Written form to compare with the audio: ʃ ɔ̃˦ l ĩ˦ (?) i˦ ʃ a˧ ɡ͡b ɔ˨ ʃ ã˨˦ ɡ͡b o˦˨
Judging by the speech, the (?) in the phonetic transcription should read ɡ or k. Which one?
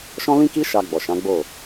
k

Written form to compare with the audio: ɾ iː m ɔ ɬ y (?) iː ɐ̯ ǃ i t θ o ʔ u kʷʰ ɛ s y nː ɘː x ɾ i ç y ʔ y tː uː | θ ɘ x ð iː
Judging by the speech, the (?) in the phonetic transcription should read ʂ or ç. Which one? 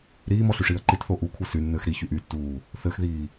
ʂ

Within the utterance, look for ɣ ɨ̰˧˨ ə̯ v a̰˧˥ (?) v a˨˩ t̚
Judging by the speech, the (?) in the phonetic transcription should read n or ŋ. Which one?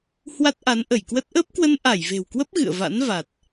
n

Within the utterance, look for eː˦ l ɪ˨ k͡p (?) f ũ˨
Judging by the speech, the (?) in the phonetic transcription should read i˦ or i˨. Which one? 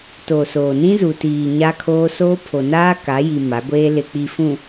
i˨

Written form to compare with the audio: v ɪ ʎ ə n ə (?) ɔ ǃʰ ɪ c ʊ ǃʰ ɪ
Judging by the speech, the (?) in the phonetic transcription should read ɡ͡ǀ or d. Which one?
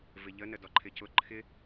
d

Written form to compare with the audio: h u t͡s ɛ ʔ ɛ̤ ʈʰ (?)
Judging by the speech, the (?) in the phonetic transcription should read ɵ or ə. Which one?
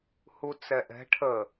ə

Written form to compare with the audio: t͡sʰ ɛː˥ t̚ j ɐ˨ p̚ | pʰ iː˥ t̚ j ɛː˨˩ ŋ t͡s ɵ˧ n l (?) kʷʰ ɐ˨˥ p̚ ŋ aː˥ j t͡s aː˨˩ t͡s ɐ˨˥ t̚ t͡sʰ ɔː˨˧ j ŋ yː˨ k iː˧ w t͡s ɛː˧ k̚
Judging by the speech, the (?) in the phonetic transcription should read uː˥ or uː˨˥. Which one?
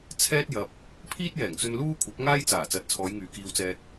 uː˥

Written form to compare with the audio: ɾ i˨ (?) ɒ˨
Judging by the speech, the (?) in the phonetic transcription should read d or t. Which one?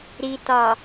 t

